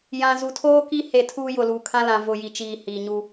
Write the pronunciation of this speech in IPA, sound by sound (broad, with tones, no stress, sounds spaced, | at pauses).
j ã˨ z u˨ tʰ oː˦ k i˦ h e˦˨ tʰ uː˦ j ʊ˨ l uː˨ kʰ ã˦ l ã˨ v ʊ˨ j i˨ t͡ʃ iː˨ h iː˨ ɲ u˦